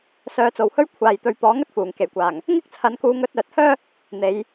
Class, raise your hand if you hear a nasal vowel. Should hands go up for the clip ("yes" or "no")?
no